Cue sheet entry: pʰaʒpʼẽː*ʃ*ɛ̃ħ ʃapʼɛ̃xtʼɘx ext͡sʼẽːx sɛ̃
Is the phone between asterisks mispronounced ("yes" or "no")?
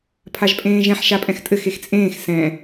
yes